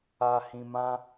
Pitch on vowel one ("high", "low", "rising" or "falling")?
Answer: low